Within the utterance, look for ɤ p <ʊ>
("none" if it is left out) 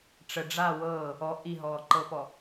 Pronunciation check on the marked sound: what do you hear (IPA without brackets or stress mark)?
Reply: ɔ